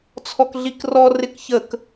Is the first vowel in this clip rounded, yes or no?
yes